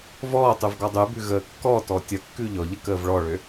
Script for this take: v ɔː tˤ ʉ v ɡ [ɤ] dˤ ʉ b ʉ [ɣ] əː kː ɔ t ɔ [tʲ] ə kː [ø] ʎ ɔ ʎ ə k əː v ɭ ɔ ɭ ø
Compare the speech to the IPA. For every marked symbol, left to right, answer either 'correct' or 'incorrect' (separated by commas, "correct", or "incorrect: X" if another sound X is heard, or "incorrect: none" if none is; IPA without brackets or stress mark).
incorrect: ɔ, correct, correct, incorrect: ʉ